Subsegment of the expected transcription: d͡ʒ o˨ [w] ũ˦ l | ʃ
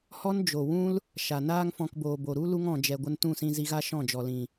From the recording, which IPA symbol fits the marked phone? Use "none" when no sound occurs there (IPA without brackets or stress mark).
w